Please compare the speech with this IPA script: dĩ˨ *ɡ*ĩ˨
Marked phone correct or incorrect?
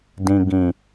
correct